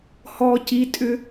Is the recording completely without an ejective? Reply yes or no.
no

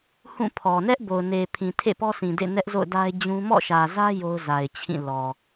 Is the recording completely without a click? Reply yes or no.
yes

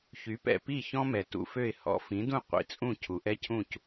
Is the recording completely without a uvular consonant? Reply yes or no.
no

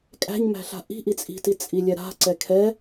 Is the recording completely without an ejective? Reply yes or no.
no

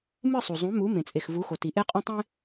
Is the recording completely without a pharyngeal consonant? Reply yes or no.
yes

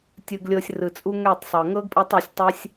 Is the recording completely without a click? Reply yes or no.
yes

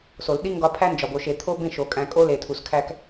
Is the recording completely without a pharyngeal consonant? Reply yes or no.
yes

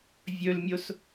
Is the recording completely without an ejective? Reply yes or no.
yes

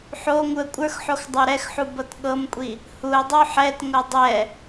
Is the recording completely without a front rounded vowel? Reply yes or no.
yes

